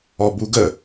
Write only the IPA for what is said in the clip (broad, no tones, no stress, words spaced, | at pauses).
ɔbuɡə